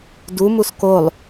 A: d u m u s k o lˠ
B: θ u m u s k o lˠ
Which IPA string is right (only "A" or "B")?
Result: A